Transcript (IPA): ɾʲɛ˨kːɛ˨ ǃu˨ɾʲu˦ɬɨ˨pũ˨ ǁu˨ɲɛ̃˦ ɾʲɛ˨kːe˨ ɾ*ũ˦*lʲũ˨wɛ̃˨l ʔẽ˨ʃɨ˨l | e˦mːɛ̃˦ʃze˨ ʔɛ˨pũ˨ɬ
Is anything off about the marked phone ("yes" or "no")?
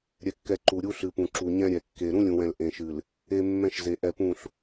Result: no